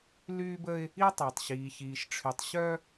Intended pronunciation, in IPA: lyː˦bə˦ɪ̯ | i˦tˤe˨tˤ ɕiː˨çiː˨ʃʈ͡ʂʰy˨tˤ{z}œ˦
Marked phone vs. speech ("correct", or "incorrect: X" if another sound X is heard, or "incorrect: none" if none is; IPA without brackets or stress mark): incorrect: ɕ